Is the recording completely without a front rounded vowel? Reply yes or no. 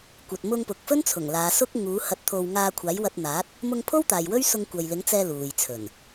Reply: yes